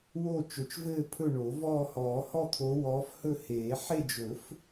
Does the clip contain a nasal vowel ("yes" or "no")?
no